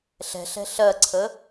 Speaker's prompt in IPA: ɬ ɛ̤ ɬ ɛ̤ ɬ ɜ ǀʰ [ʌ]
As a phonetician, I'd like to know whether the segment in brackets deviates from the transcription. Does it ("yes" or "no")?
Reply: yes